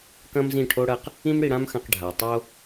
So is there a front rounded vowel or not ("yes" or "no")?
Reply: no